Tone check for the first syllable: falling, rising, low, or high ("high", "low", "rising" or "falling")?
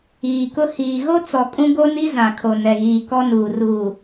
low